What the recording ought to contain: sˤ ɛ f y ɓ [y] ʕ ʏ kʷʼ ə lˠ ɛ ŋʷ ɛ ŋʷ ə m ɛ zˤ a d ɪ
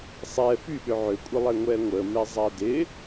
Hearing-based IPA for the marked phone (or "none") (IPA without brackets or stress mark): ʏ